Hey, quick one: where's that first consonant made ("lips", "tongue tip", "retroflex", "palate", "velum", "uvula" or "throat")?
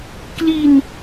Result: velum